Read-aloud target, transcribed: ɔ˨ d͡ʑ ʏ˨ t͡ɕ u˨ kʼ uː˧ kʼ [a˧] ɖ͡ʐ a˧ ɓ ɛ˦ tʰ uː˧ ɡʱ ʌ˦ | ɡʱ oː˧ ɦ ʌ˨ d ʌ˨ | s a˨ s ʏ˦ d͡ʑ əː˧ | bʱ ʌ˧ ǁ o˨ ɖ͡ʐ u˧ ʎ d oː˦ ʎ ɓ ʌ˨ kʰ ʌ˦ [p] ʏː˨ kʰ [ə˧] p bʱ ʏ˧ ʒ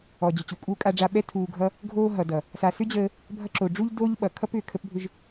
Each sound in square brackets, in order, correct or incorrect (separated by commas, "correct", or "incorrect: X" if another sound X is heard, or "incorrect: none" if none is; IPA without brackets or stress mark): correct, correct, correct